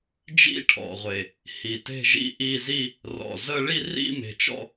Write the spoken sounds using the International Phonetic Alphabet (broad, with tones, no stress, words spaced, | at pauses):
d͡ʒḭ˥˧ʈʰɔ̰˨˩ʁʷe˨˩ | hi˨˩te̤˥˧ʒḭ˥˧ʔi˥˧ zi˥˧ | rɔ̰˨˩ zə˥˧ ɭi˥˧rḭ˥˧me̤˨˩t͡ʃɔ̰˥˧